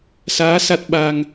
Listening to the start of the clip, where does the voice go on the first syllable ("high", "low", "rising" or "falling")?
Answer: rising